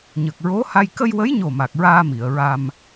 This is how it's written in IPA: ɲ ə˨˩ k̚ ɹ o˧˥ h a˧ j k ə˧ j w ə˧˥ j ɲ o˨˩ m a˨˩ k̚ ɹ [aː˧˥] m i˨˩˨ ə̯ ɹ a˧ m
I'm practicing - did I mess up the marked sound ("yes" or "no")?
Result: yes